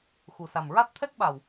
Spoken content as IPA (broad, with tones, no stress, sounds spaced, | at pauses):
x u˨˩ s a˨˩ m ɹ a˦˥ t̚ t̪ʰ ɛ˦˥ k̚ ɓ a˨˩ w